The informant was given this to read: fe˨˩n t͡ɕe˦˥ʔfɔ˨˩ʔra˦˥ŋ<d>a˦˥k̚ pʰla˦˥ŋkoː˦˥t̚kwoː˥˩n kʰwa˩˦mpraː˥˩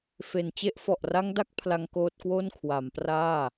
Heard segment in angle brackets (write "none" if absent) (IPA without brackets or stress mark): d